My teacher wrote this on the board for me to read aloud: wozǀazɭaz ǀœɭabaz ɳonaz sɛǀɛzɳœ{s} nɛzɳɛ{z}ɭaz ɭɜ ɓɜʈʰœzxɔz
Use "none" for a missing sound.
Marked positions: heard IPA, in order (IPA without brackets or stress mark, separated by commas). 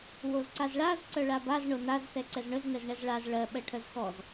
z, z